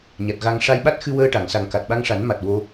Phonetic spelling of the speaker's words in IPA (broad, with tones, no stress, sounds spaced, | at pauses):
ɲ a˨˩ t̚ ɣ a˨˩ ŋ ʂ a˧ j ɓ a˦˥ t̚ x ɨ˧ w əː˧ ʈ a˨˩˨ ŋ s a˨˩ ŋ k a˨˩ t̚ ɓ a˧ ŋ ʂ a˨˩˦ n m a˨˩ t̚ w o˧